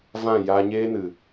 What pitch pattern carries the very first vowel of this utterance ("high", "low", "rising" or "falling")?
falling